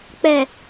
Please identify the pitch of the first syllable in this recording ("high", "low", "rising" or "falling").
low